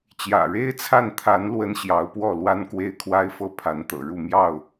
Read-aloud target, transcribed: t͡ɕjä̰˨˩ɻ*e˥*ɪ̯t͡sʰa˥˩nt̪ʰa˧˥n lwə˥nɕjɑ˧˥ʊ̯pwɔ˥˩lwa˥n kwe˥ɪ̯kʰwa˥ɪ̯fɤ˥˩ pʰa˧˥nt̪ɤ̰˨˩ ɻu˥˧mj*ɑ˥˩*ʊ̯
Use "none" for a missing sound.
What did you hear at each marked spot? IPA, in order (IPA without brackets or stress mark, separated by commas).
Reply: e˥, ɑ˥˩